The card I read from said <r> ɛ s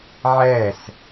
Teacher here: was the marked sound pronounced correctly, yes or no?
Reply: no